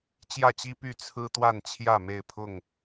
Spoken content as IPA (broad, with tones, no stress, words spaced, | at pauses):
t͡ɕjä˥˨t͡ɕi˦py˥˨ t͡sʰɹ̩˦t̪wa˥˨n t͡ɕʰjä˥˨me˥˨ɪ̯pʰʊ˥˨ŋ